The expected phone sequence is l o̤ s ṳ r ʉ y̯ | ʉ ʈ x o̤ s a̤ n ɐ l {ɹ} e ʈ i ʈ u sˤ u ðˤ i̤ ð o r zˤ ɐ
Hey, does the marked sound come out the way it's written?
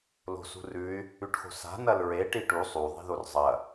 yes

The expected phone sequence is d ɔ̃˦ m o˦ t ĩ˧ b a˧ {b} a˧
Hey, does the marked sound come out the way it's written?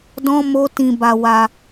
no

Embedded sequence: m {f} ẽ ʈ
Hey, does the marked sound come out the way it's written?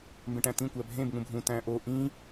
no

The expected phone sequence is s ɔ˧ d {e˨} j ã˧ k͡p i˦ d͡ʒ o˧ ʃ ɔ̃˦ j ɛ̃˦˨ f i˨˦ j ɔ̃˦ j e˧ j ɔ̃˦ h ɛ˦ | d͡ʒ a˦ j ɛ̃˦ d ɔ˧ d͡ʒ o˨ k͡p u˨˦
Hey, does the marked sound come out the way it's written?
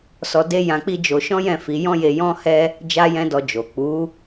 no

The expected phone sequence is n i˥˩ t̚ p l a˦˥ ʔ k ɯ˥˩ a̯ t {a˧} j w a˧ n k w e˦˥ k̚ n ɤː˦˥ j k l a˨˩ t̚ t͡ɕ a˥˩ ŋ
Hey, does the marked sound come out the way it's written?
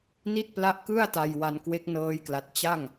yes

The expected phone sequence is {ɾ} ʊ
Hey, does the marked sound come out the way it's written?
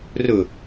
no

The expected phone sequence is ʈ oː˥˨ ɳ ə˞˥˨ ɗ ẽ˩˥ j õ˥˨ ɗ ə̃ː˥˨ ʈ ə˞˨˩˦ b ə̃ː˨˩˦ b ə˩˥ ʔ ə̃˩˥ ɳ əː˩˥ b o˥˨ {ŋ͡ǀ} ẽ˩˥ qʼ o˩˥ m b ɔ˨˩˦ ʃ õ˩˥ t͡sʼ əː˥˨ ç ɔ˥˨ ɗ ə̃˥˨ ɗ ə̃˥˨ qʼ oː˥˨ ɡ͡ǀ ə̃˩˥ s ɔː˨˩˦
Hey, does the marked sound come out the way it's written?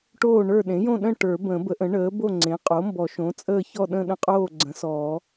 yes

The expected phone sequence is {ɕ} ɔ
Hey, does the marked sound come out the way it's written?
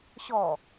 yes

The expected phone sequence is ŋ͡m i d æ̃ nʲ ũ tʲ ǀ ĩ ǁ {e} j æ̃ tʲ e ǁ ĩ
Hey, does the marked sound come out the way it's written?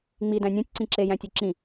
yes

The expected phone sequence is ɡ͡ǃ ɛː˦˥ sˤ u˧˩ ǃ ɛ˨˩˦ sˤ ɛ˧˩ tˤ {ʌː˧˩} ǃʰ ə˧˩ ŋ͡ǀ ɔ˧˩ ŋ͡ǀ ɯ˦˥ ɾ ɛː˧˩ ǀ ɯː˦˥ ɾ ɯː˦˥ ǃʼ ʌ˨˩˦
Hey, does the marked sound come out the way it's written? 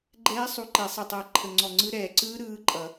yes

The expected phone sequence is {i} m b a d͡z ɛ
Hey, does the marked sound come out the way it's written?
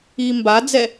no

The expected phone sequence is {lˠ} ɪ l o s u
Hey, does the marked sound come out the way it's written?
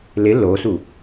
no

